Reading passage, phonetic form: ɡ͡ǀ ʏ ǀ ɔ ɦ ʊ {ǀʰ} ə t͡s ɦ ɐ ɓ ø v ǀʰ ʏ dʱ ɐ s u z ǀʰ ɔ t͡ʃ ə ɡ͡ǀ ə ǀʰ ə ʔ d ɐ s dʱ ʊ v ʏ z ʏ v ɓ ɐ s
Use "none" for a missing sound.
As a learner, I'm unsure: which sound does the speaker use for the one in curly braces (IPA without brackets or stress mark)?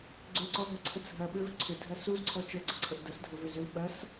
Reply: ǀʰ